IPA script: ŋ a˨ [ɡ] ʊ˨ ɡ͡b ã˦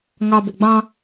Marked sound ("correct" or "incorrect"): incorrect